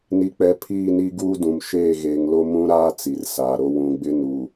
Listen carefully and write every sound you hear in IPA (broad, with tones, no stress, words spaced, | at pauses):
ni˨k͡pɛ˨ pʰiː˦˨ni˦ ɡuː˦dũ˨m ʃeː˦˨ɣeː˨ŋlo˦ mũ˦ɾaː˦ t͡si˨r saː˨ɾo˦ wũ˨ ɡ͡bɪ˦nu˨